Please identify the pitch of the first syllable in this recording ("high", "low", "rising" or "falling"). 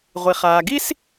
low